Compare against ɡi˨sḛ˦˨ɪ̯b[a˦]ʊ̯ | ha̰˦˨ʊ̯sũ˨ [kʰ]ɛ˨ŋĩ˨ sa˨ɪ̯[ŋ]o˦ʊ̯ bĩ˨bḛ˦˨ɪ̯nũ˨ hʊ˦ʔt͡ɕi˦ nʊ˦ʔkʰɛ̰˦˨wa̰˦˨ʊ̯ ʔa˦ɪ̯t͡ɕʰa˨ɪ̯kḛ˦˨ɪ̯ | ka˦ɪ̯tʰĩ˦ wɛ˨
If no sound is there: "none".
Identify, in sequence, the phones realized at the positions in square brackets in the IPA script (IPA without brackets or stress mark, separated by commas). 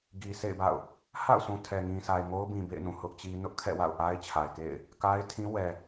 a̰˦˨, tʰ, ŋ